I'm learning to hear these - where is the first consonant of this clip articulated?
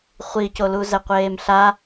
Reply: uvula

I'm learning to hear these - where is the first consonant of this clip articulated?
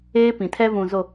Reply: lips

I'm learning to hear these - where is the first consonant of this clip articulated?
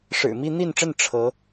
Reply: retroflex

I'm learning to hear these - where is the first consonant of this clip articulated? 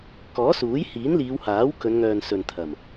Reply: velum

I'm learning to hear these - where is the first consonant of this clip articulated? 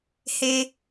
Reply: throat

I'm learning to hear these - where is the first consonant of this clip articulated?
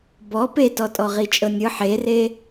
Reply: lips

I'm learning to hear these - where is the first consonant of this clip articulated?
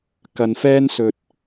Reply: velum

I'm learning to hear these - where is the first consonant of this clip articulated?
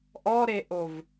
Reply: throat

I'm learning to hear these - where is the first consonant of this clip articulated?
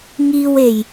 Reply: velum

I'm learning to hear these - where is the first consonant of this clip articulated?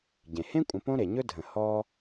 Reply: palate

